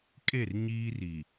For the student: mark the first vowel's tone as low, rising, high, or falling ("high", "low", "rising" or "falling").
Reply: falling